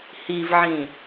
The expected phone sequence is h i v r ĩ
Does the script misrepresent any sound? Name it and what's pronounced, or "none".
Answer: r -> ʕ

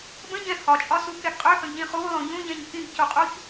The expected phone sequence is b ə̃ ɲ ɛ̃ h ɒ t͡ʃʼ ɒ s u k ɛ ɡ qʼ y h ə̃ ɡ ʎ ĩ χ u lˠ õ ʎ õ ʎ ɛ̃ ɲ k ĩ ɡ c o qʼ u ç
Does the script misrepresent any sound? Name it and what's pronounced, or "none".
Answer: y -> ø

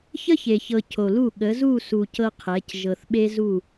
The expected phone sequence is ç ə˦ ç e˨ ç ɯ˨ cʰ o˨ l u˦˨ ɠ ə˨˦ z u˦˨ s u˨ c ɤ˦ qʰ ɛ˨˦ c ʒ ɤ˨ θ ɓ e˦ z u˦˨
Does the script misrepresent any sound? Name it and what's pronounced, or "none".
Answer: ɯ˨ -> ɤ˨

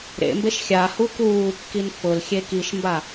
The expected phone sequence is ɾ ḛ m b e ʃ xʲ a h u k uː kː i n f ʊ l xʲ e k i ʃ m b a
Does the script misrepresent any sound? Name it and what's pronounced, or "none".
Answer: none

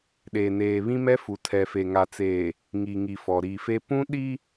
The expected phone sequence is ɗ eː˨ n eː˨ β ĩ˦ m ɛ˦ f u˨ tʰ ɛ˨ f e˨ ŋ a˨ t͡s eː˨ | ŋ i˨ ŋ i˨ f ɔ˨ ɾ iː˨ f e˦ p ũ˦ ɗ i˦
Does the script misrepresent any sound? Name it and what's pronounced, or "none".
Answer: none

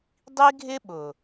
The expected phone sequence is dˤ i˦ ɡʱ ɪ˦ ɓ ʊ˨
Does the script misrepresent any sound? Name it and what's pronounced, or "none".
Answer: none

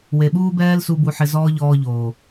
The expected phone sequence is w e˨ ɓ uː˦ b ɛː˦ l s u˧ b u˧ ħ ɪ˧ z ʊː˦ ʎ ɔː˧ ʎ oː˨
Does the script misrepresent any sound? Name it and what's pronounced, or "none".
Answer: ʊː˦ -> ɔː˦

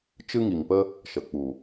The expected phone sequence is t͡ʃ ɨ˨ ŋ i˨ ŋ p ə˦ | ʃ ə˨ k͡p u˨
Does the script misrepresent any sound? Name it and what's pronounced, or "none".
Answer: ɨ˨ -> ɨ˦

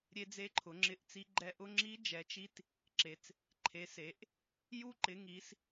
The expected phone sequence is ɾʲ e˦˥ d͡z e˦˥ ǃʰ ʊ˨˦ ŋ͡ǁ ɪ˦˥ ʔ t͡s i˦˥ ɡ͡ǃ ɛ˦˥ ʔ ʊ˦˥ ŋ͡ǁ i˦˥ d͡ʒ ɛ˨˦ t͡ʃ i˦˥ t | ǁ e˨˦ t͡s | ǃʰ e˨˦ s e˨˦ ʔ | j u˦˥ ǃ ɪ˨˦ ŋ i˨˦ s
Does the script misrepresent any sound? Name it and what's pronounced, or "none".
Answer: none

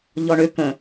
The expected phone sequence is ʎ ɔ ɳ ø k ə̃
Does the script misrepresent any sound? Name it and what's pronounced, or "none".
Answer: none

